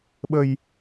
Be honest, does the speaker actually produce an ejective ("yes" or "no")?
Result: no